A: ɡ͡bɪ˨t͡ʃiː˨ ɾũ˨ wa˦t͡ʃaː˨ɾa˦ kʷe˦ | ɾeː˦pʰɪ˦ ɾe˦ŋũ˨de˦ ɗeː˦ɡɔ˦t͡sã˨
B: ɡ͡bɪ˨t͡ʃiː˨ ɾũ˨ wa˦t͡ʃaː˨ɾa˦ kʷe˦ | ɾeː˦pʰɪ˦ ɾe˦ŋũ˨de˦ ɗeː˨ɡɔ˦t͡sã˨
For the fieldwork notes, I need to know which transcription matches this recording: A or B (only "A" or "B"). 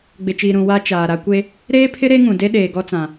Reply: B